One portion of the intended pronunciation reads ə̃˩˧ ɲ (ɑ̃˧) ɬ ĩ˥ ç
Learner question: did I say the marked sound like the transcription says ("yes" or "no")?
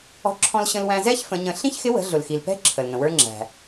no